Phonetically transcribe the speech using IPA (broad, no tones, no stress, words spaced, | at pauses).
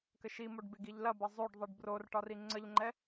kɘʃimoɖ beɡiʎlɐbɐ zˤoɖðˤɘɖ bror ʈɒriŋ͡ǀəʎŋ͡ǃɛ